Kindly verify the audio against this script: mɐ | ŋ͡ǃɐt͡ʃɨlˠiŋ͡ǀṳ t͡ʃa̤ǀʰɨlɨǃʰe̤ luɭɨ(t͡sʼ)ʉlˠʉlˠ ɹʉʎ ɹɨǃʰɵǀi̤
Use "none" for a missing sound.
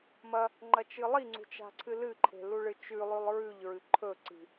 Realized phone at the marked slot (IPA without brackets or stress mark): t͡ʃ